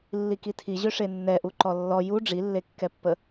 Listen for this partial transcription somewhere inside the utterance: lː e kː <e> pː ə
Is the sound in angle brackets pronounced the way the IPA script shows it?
no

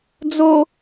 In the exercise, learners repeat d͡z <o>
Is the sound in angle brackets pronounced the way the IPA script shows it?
yes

